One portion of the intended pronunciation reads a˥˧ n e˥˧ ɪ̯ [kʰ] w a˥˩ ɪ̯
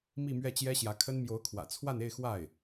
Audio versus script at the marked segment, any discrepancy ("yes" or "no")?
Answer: yes